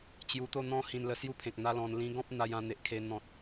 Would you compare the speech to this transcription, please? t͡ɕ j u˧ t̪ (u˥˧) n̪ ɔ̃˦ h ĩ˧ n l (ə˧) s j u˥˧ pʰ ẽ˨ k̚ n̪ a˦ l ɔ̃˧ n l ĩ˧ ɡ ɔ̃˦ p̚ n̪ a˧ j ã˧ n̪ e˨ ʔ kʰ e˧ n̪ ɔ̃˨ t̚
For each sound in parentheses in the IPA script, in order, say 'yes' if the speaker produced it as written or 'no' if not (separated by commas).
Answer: no, yes